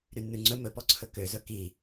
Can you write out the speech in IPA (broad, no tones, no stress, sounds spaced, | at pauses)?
ɾ y nː ʉ ŋ͡ǀ ɵ m ɵ p ɔ ǀʰ ɵ k ø z ɵ k i